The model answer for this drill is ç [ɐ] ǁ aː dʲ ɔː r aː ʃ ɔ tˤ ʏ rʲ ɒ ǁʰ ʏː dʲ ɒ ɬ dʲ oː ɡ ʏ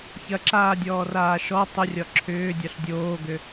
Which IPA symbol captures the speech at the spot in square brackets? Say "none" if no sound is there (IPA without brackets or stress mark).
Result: ɐ